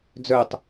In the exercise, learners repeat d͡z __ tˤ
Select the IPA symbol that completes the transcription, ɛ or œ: œ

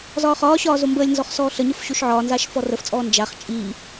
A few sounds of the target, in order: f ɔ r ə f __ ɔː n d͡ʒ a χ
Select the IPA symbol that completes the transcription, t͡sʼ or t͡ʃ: t͡sʼ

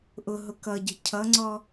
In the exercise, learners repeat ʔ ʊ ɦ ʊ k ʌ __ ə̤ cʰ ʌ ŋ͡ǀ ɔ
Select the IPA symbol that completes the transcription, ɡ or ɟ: ɟ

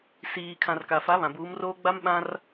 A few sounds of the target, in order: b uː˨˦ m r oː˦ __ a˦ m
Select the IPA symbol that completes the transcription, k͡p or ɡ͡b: ɡ͡b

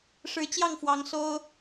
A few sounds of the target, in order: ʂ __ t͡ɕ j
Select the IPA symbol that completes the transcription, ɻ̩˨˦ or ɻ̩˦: ɻ̩˨˦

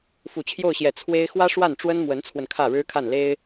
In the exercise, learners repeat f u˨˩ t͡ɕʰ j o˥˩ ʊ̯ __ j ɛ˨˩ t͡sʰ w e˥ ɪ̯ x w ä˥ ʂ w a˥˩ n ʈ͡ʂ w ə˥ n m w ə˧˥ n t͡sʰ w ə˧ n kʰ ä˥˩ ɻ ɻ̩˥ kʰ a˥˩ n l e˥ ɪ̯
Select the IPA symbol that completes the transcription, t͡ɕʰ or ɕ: ɕ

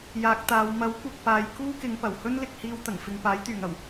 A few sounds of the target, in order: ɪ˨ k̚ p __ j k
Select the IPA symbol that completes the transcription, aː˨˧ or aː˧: aː˨˧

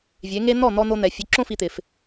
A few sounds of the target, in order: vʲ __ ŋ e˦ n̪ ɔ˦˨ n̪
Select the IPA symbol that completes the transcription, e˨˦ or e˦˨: e˨˦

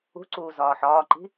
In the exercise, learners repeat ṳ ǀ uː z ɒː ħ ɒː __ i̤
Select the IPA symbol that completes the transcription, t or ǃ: ǃ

